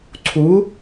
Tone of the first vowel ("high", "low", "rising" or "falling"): rising